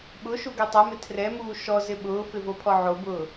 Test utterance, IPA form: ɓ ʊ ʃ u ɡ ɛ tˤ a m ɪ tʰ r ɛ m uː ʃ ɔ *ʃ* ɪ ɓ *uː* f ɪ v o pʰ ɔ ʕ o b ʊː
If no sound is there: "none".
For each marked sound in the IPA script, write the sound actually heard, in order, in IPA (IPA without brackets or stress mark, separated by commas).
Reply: z, ʊː